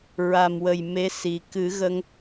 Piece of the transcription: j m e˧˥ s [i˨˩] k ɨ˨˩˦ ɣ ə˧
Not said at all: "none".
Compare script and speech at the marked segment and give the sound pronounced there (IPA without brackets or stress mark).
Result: i˨˩